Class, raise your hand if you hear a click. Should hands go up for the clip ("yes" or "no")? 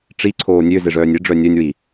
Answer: yes